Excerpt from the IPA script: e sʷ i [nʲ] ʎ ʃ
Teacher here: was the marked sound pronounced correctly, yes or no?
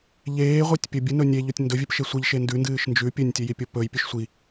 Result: no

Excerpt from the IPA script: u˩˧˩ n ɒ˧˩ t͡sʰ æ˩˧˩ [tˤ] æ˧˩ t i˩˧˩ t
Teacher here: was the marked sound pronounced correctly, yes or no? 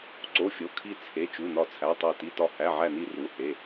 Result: yes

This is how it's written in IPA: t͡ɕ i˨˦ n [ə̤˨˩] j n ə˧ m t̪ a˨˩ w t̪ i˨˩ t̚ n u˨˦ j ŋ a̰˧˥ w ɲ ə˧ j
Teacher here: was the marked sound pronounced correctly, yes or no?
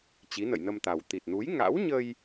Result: no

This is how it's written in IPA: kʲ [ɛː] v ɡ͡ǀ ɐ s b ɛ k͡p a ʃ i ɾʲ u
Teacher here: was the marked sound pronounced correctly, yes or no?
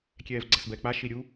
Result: yes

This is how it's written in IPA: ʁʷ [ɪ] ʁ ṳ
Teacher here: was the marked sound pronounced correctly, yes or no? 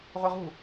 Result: yes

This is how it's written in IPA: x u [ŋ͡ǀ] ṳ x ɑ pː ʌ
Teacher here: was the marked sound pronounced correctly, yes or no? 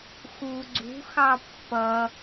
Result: no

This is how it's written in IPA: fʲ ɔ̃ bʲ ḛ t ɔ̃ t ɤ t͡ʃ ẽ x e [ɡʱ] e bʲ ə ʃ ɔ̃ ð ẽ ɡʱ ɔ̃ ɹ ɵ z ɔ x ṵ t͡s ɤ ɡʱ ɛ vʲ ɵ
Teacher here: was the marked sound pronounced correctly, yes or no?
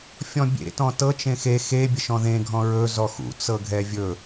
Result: no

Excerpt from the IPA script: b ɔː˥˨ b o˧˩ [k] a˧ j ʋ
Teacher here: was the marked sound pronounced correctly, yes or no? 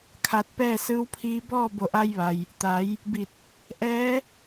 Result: no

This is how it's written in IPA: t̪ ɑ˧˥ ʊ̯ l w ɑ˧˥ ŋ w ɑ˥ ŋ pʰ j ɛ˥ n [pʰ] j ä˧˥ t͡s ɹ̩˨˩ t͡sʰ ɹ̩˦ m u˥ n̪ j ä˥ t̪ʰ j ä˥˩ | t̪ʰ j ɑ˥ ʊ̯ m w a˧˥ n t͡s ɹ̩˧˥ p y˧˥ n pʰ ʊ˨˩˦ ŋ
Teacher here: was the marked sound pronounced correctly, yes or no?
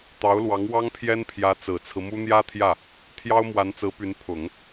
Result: yes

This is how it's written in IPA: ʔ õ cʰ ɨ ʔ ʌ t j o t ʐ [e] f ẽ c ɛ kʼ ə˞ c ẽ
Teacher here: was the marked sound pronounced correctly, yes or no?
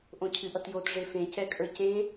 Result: yes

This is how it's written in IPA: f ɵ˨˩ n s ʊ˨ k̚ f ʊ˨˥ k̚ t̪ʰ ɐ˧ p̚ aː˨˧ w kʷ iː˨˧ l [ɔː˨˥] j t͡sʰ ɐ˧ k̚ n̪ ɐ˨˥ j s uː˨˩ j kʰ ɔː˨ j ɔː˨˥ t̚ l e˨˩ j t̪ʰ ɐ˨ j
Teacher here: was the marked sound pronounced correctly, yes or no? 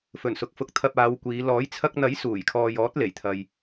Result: yes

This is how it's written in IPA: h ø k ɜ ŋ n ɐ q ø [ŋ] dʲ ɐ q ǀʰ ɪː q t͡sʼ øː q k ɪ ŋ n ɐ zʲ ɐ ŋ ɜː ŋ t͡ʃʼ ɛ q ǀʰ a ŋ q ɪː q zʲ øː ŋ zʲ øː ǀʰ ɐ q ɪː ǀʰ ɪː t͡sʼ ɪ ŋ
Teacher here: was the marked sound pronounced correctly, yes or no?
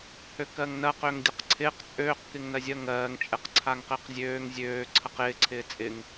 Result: yes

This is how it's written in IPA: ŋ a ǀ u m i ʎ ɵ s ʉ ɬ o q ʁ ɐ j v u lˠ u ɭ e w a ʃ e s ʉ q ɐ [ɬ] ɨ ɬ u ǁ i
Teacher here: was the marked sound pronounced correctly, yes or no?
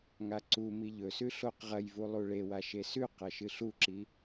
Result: no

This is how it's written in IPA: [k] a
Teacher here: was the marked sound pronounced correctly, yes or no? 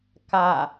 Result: yes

